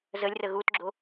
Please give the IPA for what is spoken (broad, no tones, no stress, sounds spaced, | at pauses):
z ə lʲ r ə ɣ u t ɡ͡ǁ o